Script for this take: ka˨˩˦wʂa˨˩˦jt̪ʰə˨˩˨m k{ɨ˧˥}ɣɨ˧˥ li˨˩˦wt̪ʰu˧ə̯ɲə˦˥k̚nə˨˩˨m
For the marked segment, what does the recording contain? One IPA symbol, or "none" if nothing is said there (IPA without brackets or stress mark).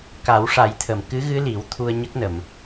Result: ɨ˧˥